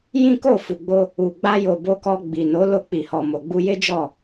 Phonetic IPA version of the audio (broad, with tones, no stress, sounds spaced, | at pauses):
j ĩ˦ k o˦˨ f u˨ ɡ͡b o˧ | u˨ ɡ͡b a˧ j o˨ b o˧ k ɔ˧ ɡ͡b i˨ n o˨˦ l o˧ k͡p i˨ h ɔ˨ m o˨ ɡ͡b u˧ j e˦ d͡ʒ ɔ˦˨